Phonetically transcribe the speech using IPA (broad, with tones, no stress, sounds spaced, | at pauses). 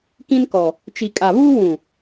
k ĩ˦ n k ɔ˨ | t͡ʃ i˨ kʼ a˨ β uː˦ w ũ˨